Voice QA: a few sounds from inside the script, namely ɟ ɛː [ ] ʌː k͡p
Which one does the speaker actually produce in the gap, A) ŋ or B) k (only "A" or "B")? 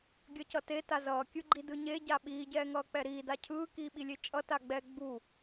A